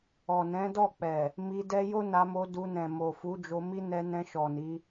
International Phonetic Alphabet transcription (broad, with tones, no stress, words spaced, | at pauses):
ɔ˨nɛ̃˨˦dɔ˦˨k͡pɛ˨ | mi˧dɛ˦ jo˦na˧mo˧ du˧nɛ̃˨ mo˨fu˨˦d͡ʒo˧mi˦ nɛ˧nɛ̃˧ ʃɔ˨ni˨˦